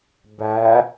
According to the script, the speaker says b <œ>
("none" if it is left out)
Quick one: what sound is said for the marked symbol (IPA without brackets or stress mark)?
æ